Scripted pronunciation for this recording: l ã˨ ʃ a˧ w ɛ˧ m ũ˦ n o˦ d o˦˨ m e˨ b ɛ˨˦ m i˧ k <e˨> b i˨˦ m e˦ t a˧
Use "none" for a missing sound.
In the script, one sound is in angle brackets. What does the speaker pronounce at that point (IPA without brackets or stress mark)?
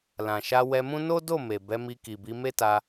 i˨